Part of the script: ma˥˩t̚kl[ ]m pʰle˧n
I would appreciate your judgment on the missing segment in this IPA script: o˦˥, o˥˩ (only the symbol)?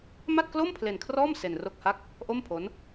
o˥˩